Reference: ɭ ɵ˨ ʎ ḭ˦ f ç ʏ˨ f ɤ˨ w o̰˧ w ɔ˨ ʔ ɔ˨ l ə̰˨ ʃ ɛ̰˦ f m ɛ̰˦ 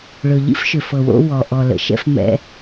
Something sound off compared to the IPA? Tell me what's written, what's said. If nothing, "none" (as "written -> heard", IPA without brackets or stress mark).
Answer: ç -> ʃ